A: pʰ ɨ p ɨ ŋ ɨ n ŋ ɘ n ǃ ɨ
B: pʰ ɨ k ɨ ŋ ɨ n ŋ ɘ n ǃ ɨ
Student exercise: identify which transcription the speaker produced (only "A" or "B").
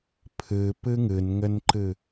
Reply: A